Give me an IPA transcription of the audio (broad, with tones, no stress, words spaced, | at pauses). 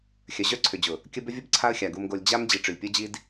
xʲœ˨ʑœ˦ǀʰʏ˨d͡ʑʊ˨ | kʲə˦bʏ˦vʲʊ˦b ǀʰa˦ə̯xʲa˨ ɡu˨mɡo˨lʲ d͡ʑa˦m d͡ʑi˨ʈ͡ʂʏ˨lʲpʲo˦d͡ʑi˦d